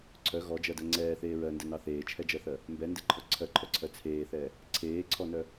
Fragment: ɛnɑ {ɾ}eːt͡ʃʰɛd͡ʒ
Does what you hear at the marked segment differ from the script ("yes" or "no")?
yes